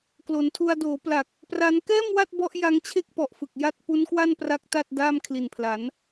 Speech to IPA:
k l o˩˦ n tʰ u˧ a̯ d oː˩˦ p l a˨˩ k̚ | p r a˦˥ n k ɛː˥˩ m w a˥˩ t̚ b ɔ˦˥ ʔ j a˦˥ ŋ t͡ɕʰ e˥˩ k̚ p ɔ˨˩ ʔ f ɯ˨˩ k̚ j a˥˩ t̚ p u˦˥ n k w a˥˩ n p r a˦˥ k̚ t a˥˩ t̚ d aː˥˩ m kʰ l i˨˩ n pʰ l a˩˦ n

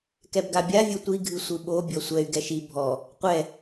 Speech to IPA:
k ɛ b ɡ a bʲ a vʲ o tʷ i ɡʱ ɨ sʷ ɨ ɓ o bʲ ɔ sʷ ɛ y̯ ɡ ɛ ʃ i bʱ ɔ | qʷ ɛ

